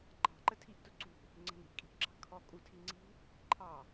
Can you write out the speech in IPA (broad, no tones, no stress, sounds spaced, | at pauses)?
ǃ ɑ̤ ǃ ə tʰ i ʔ t ʊ ǀ ṳ | ŋ͡ǀ ə̤ n i̤ ʔ kʼ i̤ ʔ ǁ ɑ̤ kʰ ɔ kʼ u tʰ i ŋ͡ǀ i̤ | ǃʰ ɑ